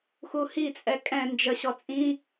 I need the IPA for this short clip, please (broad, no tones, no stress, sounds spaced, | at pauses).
x u h i t͡sʼ ɛ kʼ ɛ̃ n d͡ʒ ə ɕ ɔ t͡sʼ ĩ